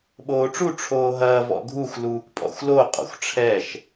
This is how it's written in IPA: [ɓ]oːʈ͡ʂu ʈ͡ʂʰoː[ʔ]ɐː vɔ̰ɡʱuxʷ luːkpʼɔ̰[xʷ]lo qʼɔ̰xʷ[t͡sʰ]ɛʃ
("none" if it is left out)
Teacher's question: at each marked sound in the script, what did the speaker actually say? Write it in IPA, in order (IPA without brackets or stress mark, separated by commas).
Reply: ɓ, ɦ, xʷ, ʈ͡ʂʰ